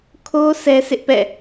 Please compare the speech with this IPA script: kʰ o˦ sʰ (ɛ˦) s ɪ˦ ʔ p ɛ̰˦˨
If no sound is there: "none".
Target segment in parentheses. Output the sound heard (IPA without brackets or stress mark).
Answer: ɛ˦